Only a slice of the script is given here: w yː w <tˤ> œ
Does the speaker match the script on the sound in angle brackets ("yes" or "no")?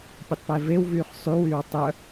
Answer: yes